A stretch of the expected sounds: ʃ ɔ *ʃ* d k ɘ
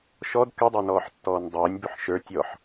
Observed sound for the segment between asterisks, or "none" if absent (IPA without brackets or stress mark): none